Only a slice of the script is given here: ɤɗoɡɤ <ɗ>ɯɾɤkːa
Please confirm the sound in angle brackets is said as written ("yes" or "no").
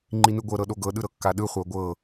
yes